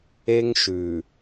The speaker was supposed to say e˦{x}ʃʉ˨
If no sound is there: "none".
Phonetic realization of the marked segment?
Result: ŋ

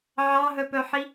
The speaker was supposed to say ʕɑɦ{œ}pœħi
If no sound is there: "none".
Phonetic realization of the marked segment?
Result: œ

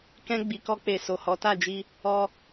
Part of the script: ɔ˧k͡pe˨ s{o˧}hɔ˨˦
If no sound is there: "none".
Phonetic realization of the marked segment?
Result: o˨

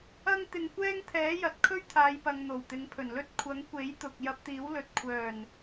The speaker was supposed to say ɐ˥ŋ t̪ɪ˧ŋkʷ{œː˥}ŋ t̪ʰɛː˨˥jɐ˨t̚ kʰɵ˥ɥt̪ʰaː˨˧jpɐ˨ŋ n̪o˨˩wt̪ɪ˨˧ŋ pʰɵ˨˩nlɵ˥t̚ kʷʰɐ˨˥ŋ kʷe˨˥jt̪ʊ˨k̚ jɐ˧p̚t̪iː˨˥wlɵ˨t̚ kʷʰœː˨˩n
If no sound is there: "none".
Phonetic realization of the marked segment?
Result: ɛː˥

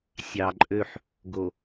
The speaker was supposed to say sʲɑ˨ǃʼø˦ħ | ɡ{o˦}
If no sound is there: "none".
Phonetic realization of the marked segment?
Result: o˨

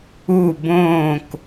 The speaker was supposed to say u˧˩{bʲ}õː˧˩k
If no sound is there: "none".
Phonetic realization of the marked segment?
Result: b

